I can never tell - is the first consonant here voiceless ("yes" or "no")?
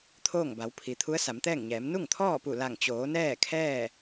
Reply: yes